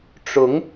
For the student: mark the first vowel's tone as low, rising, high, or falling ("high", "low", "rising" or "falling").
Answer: rising